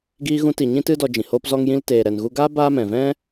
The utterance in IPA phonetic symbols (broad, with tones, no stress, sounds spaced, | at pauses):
ɡ iː˧ ɣ ũ˧ t i˨ ɲ ĩ˦ t ɨ˦ d ɔ˧ d͡ʒ ĩ˨ h oː˧ p z ɔ˧ ŋ j ĩ˧ l t eː˨ ɾ ɛ˨ n ɣ u˧ ɡ aː˦ b aː˦ m ɛ̃˨ v ɛ̃˦